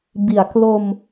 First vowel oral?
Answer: yes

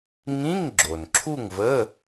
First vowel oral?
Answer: no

